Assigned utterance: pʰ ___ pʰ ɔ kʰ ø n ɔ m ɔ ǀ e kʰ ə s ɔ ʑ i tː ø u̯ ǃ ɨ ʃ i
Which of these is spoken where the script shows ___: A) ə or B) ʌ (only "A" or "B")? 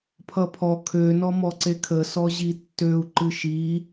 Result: B